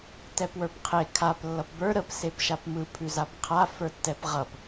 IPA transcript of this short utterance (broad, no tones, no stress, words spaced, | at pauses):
tɛpwə˞pqʰe kʰap lːʌpbə˞ ɾəp sepʃapmɯ pʰʉzapqʰa fə˞tːɛpʁʌp